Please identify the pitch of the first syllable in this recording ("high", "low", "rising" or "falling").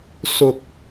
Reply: low